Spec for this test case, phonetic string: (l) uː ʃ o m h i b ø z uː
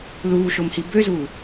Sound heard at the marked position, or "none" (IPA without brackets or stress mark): l